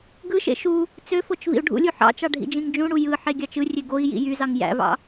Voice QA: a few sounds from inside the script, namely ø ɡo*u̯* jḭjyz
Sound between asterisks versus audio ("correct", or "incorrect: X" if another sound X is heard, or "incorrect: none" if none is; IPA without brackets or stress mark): incorrect: i̯